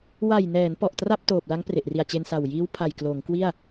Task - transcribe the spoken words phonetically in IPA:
wa˨˩jnɛː˩˦n pɔ˨˩ʔtra˥˩p̚ toː˨˩p̚la˦˥ŋ pre˨˩ʔ ri˨˩a̯t͡ɕe˧nsa˨˩w jiː˦˥wpʰa˨˩j kloː˩˦ŋkwi˥˩a̯

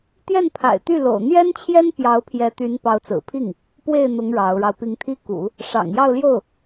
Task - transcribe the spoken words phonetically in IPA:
t̪jɛ˥˩npʰa̰˨˩ɪ̯t̪y˥˩ lo̰˨˩ʊ̯ n̪jɛ˥nt͡ɕʰjɛ˥n pjɑ˧˥ʊ̯pʰjɛ˧˥t̪y˧˥n pɑ˧˥ʊ̯t͡sɹ̩˨˩pʰi˥˩ŋ | pwe˥˩ɪ̯n̪ʊ˧˥ŋ ɻɑ˧˥ʊ̯ɻɑ˧ʊ̯ pi˧˥ŋt̪ʰi˥ kṵ˨˩˦ | ʂɑ̰˨˩ŋjɑ˥˧ʊ̯ljo˥˩ʊ̯

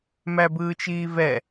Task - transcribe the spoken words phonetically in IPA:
mæbɯːt͡ʃiːvɛ

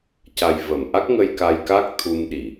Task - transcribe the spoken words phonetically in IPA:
ca˨˩jvə˨˩˨mʔa˦˥k̚ŋə˧j ka˧jka˦˥k̚ t̪ʰu˧mɗi˨˩˨

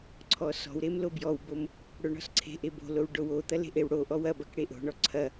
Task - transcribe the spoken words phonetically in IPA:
ǀʰɔsɔ̤wɾem lobjɔwbom | ɽoɳɔ̤sǀʰe̤ʔe bo̤low ɖowot̪ɐ le̤ʔewɽoʔɔw ɐbɐk ɽeʔo̤ɳɔ ǀʰɐ

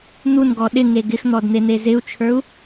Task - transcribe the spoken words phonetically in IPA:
n̪unɡɔ ɗɪŋe ɡɪxn̪ɔdn̪en̪e zɪu̯t͡ʃʰə˞u̯

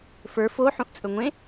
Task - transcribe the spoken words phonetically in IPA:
fə˞ fo ħũʔt͡sʼɵŋʷẽ

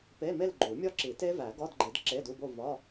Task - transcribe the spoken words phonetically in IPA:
pe˧˥˧me˥˧lɡ͡ǃu˨˩˦ mʲɒ˥˧ǁi˨˩˦te˦˥ væ˨˩˦ɡɒ˧˥˧dɡ͡ǃi˨˩˦d ǁe˧˥˧du˧˥˧bo˥˧ vɒ˧˥˧

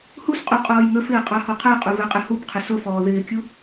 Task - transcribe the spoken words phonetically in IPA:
hus qʼuqʼɔːjŋəfɪː qʼɑhɔqʰæqʼu vɛqʼɪhubqʰɪ sʊ fɔːðɪːkʲu

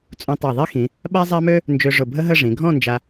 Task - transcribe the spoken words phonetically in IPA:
t͡sʼũ˧tˤa˧˩ðˤi˥xĩ˩˧ | ɓa˥zˤa˥mø˥ | nd͡ʒø˧ʐʊ˧˩bʱə˥ɦə˥˧ ʐĩ˩˧ɡʱɔ̃˥˧nd͡ʒa˧

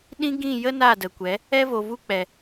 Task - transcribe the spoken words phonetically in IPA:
ɗĩ˦ ɡĩ˦˨jə˦ na˦˨də˨kʷɛ˨˦ | ɛ˧vo˨vu˧k͡pɛ˨

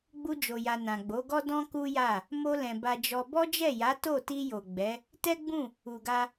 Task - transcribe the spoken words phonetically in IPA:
ɡ͡bu˧d͡ʒo˨ja˨ nã˨ɡ͡bo˨˦ɡɔ˦ dɔ̃˦ku˦ja˦˨ | mo˧lɛ̃˨ ba˧d͡ʒɔ˧ bɔ˦d͡ʒɛ˦˨ja˨˦ to˦˨ ti˧jo˨ɡ͡bɛ˨˦ | tɛ˦ɡ͡bũ˦˨ | u˨ɡa˧

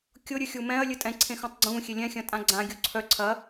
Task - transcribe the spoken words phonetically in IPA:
kʲʊɾʲɨ xʲumɛ̃ɐ̯ lʲɨtʼɛ̃ǀʰẽ xœ̃tˤɡ͡ǀũː xʲelʲɛ̃xʲɐ̃ tʼãɡ͡ǀã ɡʲuǀʰœ ǀʰɐ

